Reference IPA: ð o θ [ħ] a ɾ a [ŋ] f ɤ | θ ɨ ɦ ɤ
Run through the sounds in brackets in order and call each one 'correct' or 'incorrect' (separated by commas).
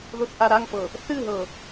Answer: incorrect, correct